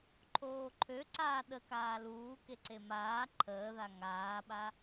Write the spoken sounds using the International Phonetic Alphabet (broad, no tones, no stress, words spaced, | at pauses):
ǃʰoːǃʰø ǀaːɗə kaːluːkeǀe maː ǃʰəːða ŋaːɓa